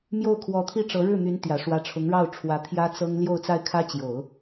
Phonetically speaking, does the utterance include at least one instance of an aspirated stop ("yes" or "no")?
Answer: yes